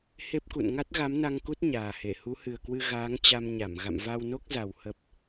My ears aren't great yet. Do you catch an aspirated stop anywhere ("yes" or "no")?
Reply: no